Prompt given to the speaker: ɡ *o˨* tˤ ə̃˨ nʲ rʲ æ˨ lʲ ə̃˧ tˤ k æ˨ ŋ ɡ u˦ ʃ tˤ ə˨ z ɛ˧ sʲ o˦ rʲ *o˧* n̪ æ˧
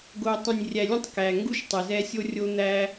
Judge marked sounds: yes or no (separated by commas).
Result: yes, yes